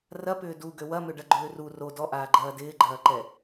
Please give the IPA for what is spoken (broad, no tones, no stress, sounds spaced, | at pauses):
r ɐ p ʏː d u ɡ ø w ɐ m ʏ ɖ ɐ ɡ͡ǃ ʏː r u r o d ɔ ʔ aː ɡ͡ǃ ɐː d ɪː ɡ͡ǃ ɐː ǃ ɛ